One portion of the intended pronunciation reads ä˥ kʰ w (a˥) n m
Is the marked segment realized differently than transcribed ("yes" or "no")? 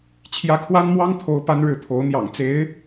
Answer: no